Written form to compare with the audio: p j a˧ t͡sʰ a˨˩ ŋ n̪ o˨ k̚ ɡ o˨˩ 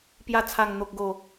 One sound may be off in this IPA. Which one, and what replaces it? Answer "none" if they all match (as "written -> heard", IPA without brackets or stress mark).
none